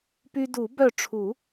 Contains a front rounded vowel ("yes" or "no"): yes